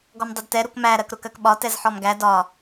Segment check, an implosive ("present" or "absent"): present